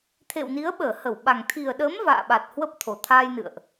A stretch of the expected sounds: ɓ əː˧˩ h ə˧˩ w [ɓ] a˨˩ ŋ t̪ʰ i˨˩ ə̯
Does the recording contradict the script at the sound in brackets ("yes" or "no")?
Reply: no